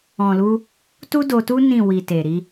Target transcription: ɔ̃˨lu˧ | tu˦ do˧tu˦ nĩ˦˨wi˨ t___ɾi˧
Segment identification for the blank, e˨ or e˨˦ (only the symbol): e˨